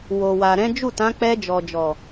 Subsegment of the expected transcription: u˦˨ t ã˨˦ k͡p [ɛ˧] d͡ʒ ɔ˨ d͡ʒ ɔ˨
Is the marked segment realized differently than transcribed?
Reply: no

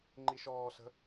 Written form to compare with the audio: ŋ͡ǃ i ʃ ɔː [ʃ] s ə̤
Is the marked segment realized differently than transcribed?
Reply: yes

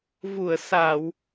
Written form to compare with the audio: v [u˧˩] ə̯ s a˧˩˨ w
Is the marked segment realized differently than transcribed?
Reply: no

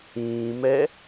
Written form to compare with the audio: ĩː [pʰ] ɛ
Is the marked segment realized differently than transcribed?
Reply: yes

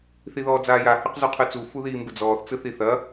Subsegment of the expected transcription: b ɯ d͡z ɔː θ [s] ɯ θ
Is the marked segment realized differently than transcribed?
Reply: yes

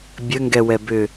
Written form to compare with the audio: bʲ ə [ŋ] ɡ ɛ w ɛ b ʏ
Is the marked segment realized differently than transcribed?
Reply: no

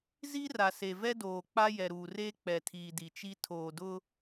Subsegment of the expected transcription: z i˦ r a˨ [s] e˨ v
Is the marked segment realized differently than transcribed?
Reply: no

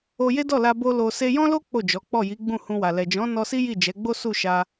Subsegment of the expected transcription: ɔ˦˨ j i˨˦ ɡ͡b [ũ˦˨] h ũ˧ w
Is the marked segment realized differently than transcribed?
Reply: no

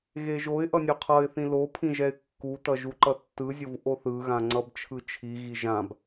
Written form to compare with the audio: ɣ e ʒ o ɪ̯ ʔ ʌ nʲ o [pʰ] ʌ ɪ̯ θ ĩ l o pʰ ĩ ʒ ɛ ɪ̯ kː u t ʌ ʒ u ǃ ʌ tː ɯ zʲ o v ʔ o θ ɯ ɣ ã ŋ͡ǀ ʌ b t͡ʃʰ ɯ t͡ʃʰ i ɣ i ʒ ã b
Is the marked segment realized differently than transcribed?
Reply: yes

